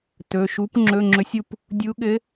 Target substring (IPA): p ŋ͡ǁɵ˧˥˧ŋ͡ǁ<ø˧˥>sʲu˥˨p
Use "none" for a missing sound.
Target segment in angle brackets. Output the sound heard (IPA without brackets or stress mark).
ɵ˧˥